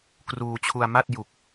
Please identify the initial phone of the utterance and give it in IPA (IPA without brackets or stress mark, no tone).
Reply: k